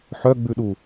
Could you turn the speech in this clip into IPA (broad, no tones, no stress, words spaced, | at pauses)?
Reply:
ħœɡ͡bʉɗu